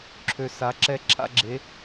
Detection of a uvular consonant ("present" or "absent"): absent